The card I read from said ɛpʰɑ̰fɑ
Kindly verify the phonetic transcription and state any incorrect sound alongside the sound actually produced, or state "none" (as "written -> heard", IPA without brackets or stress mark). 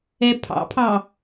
f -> pʰ